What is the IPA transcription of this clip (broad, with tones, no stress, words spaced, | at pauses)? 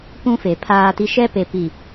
pũ˦fe˨pʰaː˦ti˦ ʃɛ˦pe˨ pi˨